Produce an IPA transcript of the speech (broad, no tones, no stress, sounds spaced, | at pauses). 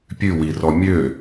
pʲ ʉ w i r ɔ mʲ ø